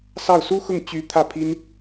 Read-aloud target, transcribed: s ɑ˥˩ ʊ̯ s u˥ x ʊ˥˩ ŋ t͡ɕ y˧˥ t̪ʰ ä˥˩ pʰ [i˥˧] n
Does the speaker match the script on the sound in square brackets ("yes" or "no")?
no